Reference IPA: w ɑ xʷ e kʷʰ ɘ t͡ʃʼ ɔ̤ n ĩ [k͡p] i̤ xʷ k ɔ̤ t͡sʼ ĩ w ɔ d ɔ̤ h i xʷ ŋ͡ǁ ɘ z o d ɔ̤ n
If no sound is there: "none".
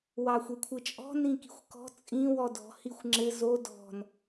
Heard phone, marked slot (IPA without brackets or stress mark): k